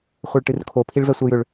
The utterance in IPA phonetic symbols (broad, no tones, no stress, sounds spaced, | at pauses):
χʷ ɛ ɭ ʈ ɨ r kʰ o pʰ i ɭ v ɛ sʷ ɛ j ʏ ɭ